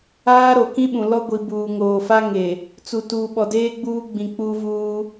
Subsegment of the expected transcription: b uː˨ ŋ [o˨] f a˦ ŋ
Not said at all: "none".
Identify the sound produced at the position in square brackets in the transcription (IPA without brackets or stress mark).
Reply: oː˨